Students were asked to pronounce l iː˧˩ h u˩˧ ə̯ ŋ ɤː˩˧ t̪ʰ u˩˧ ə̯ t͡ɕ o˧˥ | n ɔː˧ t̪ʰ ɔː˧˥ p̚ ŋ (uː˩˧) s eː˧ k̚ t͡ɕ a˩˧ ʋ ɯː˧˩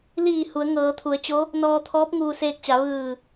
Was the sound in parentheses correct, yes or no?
no